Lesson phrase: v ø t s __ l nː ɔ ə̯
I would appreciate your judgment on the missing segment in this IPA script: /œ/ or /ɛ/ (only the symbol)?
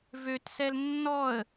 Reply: ɛ